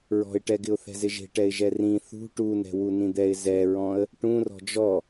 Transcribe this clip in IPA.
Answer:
ɹɔ̤ɪ̯ʈɛɡɪʊ̯ θɛ̤zɪʒe̤ʈɛɪ̯ ʒɛrĩ θṳ ʈunɛ̤ wunĩd̪ɛɪ̯ zɛɹɔ̃ə̯ | ʈũrɔ̤ d͡ʒɔ

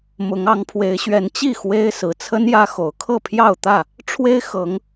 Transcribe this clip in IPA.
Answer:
mʊ˨˦ŋ ɑ˨˦ŋpʰwe˨˦ɪ̯ɕɥɛ˨˦n t͡ɕi˥˨ xwe˦ɪ̯sɹ̩˨˦ t͡sʰə˦njä˦ xo˨˦ʊ̯ kʰɤ˥˨pʰjɑ˥˨ʊ̯t̪ä˥˨ | ʈ͡ʂʰwe˦ɪ̯ xɤ˨˦ŋ

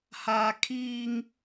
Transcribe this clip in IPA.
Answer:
haː˦ kʰiː˦ŋ

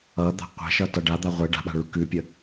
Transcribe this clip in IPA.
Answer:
ʌ d̪a̤qʷɛ̤ʃʌ tʌɖad̪a ʁʷɛ ɖa̤ɓa̤ ɭʉkʉpʲə

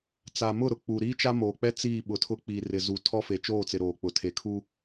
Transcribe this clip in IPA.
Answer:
t͡sa˨mʊ˦˨ ɾʊ˨k͡pu˨ ɾiː˦t͡ʃa˦moː˨k͡pɛ˦ t͡siː˦˨ɓʊ˨˦tʰʊ˦ k͡piː˨rɪ˨ zu˨ tʰɔ˦fe˨ t͡ʃoː˦˨t͡sɪ˨ ɾoː˨k͡pʊ˨ tʰe˨ kʰu˦

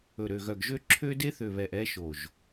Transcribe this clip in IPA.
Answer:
ɵ˨ɾø˨ɣœ˨ɡʒø˦ ǁʰø˦de˦θø˨βɛ˨ʔ ɛ˦ʃo˨ʒ

